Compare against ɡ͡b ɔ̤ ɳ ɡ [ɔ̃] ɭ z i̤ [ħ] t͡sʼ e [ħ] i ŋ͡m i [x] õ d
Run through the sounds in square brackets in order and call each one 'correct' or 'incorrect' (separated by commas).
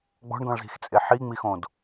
correct, incorrect, correct, correct